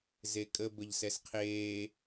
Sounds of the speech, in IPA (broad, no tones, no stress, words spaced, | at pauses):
zekʼə bəʎsɛsqʰeː